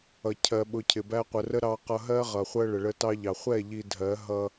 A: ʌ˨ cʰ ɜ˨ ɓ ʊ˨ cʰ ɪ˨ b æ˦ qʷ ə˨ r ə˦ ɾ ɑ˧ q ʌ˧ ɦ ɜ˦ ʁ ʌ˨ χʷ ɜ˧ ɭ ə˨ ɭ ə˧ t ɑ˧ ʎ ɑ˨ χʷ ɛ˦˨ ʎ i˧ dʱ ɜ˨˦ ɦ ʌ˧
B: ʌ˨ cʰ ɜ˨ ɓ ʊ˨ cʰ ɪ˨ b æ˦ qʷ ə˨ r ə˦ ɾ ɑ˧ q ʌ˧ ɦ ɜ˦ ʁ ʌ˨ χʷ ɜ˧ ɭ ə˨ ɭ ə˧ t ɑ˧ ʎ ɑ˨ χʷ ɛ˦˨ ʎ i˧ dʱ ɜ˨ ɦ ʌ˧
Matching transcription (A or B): A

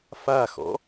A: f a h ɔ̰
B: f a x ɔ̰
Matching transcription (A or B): B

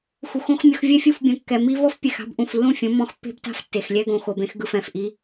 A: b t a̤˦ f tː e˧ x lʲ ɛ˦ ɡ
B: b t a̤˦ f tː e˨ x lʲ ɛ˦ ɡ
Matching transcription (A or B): B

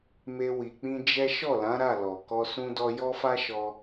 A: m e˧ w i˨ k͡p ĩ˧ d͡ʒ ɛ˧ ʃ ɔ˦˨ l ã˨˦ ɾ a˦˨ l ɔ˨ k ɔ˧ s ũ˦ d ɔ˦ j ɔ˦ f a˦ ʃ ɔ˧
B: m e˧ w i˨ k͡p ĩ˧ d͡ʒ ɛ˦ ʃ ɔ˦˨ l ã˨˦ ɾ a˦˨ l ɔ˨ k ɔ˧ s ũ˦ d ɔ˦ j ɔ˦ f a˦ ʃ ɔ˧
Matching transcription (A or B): B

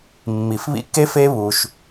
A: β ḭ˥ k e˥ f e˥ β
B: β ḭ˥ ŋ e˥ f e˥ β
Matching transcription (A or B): A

